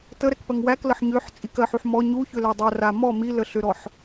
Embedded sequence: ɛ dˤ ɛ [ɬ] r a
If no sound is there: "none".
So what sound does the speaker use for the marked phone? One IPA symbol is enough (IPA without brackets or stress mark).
none